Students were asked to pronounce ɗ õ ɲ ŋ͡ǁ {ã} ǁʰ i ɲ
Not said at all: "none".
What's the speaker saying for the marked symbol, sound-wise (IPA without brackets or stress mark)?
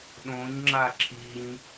a